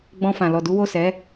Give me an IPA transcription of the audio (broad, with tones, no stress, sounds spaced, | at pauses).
ɡ͡b ɔ̃˧ f ã˨ l ɔ˨ d u˨˦ w o˦˨ s ɛ˨˦